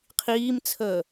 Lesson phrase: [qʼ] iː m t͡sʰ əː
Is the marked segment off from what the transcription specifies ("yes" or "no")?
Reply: yes